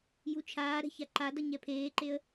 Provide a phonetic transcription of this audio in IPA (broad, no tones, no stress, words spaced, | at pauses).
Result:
jut͡ʃʰaːɾɛ̤ çaǃadʌ ɲɛpʰeːǃeə̯